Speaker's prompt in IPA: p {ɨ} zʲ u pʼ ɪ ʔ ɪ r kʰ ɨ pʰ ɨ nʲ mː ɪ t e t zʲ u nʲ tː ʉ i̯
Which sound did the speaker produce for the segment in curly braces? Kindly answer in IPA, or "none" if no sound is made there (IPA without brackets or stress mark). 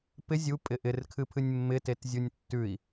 ɪ